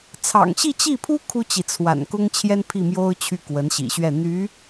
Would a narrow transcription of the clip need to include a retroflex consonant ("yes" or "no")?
no